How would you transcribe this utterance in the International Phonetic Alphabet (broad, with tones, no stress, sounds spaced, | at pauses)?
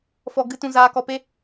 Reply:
f ɔ˧ ɡ ɨ˦ t ũ˧ z aː˧ k ɔ˧ p e˦